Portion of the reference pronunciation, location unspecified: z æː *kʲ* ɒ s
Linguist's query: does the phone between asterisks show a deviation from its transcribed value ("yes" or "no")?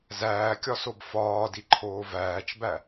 no